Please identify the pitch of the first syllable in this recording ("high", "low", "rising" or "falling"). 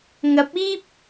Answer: rising